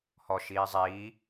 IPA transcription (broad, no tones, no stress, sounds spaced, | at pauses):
h ɔ ʃ iː zˤ iː